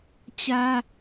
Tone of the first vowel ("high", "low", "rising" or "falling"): high